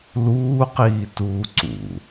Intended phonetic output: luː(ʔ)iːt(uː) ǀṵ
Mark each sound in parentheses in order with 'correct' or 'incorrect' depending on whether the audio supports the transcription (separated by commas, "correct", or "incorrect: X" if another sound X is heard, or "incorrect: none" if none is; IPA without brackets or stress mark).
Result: incorrect: q, correct